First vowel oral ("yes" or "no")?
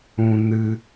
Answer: no